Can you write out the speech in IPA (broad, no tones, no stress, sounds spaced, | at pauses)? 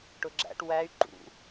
ʈ ʊ ɡ͡ǁ æ̰ ʈ w æ y̯ ǃ ṵ